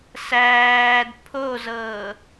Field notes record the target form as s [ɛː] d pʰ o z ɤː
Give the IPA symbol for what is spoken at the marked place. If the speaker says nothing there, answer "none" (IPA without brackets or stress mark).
æː